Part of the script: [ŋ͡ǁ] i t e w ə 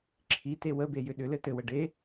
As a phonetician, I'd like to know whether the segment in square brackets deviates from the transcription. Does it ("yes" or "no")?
yes